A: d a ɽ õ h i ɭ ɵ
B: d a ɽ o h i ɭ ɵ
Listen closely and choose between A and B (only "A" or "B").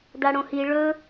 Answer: A